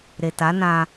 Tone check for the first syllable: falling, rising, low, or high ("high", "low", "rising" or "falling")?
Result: low